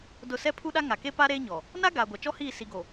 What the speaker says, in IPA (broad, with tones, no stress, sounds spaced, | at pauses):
d ʊ˦˨ s ɛ˦ pʰ u˦ ɗ a˦ ŋ a˨ k e˦ p a˦ ɾ eː˦ ɲ ɔ˨ | n a˦ ɡ aː˨ ɡʷ a˨ t͡ʃ ɔ˦ h iː˦˨ s i˨ ɡ o˨